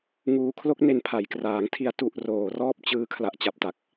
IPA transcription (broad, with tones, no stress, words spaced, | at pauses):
ŋuː˧ kʰlo˦˥k̚ne˧npʰa˩˦j kraː˩˦ŋtʰi˧a̯ tu˨˩ʔ roː˨˩rɔː˥˩p̚ t͡ɕɯː˧kʰla˨˩ʔ t͡ɕa˨˩p̚ta˨˩k̚